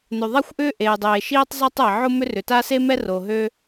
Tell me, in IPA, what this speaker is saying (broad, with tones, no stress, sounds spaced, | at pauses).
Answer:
n ø˩ ðˤ a˥ xʷ ʔ ʏː˥ ʔ eː˩ dˤ eː˩ ʃ iː˥ tˤ zˤ a˥ tˤ ɛ˩ ʕ ʊ˥ m ʏ˥ r ʏ˩ t a˥ s e˥ m ɛ˥ r o˩ ɦ ø˥